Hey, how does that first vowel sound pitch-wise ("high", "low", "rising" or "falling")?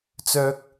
high